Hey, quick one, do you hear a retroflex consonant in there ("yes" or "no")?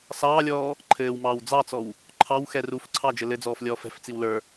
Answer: no